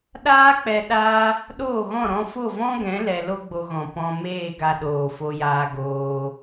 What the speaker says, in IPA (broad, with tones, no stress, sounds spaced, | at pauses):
ɗ aː˦ k͡p ɛ˧ ɗ a˧ | ɗ oː˦˨ ɣ ɔ̃˦˨ ɾ ɔ̃˧ f o˦˨ v ɔ̃˦ ɡ ɛ̃˨˦ l ɛ˧ l o˦ ɡ͡b o˧ ɣ ɔ̃˨ p ɔ̃˧ m eː˦˨ ɡ a˧ ɗ oː˨ f o˧ j aː˧ ɡ oː˧